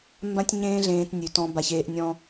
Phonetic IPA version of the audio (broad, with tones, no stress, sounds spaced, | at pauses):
m b ã˦ tʲ ɲ ẽː˦ ɮ ẽː˦ t nʲ ʉ˧ t ɔ̃˦ b a˧ ç eː˧ ʔ nʲ ɔ̃˦